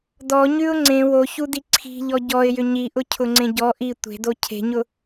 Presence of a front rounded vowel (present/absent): present